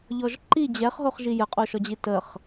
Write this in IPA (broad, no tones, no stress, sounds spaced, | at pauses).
ʎ ɔ ʒ ǃ i d͡ʑ ɛ χ ɦ o χ ʒ i j ə qʼ o ʃ ɔ d͡ʑ i t ə χ